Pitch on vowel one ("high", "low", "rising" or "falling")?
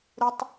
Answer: high